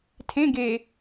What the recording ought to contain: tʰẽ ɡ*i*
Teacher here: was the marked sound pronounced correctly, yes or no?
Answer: no